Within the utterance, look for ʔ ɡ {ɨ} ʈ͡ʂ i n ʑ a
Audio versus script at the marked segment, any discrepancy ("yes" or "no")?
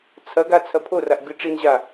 no